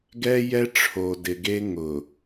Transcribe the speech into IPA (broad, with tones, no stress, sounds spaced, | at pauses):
ɡ ɛ˦ j ɛ˦ ʈ͡ʂʰ o˨ d ɪ˨ ɡ e˦ ŋ ʊ˨